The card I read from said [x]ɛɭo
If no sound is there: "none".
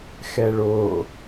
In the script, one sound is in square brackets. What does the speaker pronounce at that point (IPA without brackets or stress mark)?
x